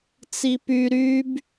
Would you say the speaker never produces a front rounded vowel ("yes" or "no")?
no